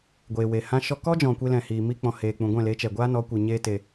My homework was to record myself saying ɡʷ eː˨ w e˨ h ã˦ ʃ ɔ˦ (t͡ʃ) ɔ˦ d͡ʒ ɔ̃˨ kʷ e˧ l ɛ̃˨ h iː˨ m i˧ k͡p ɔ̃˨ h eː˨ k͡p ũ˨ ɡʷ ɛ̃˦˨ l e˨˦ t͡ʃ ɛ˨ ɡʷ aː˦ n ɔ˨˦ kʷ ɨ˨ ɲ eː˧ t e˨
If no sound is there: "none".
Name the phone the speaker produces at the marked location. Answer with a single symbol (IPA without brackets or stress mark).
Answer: k